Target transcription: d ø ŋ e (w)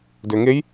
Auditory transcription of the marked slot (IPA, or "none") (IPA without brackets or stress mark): j